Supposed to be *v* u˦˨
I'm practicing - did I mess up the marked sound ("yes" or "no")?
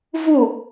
no